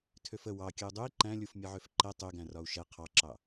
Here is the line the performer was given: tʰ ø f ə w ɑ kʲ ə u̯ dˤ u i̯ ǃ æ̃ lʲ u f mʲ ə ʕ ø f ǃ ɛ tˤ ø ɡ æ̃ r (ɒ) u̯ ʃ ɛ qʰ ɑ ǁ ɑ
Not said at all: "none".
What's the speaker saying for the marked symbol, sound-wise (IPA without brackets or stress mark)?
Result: ɒ